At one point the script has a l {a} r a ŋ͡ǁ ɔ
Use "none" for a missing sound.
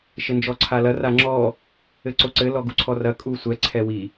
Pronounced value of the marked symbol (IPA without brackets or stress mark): ɐ